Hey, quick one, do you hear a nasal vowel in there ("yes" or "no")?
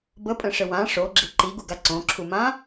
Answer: yes